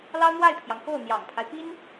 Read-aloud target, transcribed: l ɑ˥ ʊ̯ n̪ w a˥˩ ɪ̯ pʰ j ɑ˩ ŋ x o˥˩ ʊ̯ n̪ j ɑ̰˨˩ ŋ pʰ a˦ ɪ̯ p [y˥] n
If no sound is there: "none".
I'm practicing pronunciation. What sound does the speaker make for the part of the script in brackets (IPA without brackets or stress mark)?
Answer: i˥